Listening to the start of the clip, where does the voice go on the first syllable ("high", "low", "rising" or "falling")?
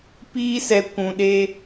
high